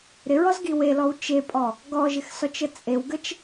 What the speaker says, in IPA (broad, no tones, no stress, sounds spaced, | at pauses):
ɾ ɪ ɹ ɔ z ɡ i w e l ɔ w t͡ʃ e pʼ ɔ | ɡ ɔ ʒ ɪ x s ɔ t͡ʃ ə t͡sʼ e w ɡ ə t͡ʃ